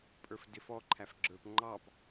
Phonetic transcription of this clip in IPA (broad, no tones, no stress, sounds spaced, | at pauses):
pʼ ə˞ f d ɪ f ɔ ǃʰ æ f ɡ͡ǁ ə˞ p ŋ͡ǃ ɑ p